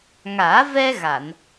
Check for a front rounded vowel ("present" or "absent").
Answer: absent